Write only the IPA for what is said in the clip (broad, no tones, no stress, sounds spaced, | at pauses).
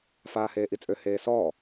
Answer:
f aː h eː ʔ i t͡sʼ ø h eː s ɔː